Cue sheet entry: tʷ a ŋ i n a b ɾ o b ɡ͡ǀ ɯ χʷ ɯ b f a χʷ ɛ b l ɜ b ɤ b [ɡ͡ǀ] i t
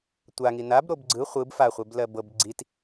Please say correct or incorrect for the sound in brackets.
correct